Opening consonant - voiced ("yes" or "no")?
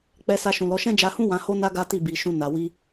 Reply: no